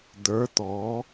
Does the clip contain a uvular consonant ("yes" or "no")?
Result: no